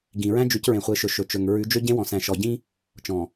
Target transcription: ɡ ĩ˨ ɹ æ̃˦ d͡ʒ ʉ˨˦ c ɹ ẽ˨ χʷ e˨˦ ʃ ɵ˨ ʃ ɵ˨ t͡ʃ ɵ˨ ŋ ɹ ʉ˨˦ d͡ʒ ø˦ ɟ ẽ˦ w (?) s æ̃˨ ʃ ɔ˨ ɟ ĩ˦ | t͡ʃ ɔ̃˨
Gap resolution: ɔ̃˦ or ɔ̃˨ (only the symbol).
ɔ̃˨